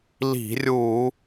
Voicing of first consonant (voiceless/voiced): voiced